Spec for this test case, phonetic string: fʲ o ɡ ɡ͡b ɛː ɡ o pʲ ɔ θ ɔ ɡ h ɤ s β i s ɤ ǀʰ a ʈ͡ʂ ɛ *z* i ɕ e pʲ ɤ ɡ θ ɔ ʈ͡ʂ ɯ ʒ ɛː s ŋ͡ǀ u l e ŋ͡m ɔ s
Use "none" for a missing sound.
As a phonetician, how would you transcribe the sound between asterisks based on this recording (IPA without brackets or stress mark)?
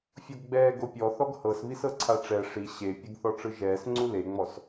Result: ʂ